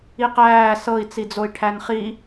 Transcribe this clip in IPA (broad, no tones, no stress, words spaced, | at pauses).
iqæː sɤi̯ t͡sid͡zoi̯ʈʰænχi